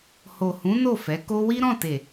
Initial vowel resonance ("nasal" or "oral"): oral